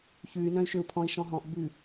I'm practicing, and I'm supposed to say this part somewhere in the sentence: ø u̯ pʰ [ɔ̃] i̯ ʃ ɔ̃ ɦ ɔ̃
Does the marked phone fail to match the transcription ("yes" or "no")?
no